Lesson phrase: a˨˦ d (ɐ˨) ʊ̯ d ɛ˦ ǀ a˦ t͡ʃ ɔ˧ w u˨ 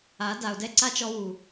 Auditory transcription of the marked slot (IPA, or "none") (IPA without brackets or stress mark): a˨